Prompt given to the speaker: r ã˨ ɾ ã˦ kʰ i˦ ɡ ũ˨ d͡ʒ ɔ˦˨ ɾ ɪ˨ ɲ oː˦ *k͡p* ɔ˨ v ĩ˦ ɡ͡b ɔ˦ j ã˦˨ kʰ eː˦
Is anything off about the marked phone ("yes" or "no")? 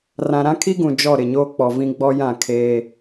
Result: no